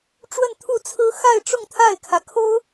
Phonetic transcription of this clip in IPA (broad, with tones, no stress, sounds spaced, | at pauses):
ʈ͡ʂ w ə˥˧ n t̪ʰ u˥˩ t͡sʰ ɹ̩˥ x a˥˧ ɪ̯ ʈ͡ʂ ʊ˥˧ ŋ t̪ʰ a˥˩ ɪ̯ kʰ ä˩ kʰ o˥ ʊ̯